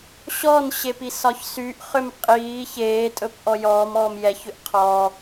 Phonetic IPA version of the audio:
ɕɔnɕep isɒçsyʔχʏm qʼiː çeːtʼɵp ʔɔjɔːmɔːm jɛçʏʔ qʰɔː

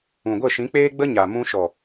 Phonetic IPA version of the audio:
ũ˨ɡʷə˦˨ʃĩ˨˦k͡peː˦ ɡ͡bə˦ɲa˨mũ˧ ʃɔ˨

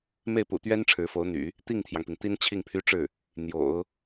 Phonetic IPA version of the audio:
me˥˩ɪ̯pṵ˨˩t̪ɥɛ˥n ʈ͡ʂʰɻ̩˧˥fo˧˥ʊ̯n̪y̰˨˩˦ | t̪i˥˩ŋt̪ʰjɑ˩ŋpi˩ŋ t̪i˥nt͡ɕʰi˥˩ŋpʰy˥ʈ͡ʂɻ̩˥˩ | n̪jo̰˨˩˦ʊ̯

